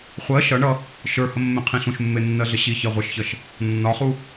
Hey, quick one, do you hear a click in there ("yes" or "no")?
no